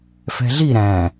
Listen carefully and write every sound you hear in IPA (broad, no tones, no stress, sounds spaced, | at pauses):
f ɛ̤ ɮ i ɾ æ̃